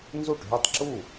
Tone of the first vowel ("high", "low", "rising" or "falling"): falling